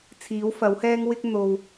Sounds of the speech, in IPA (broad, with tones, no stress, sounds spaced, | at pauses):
t͡sʰ iː˨˥ w f ɐ˨˥ w h ɛː˥ ŋ w ɪ˥ k̚ n̪ o˧ w